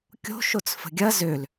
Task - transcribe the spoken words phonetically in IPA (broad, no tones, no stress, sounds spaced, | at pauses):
kʲ o̤ ʃ o t͡s f ə̤ ɡʲ ɐ z ø l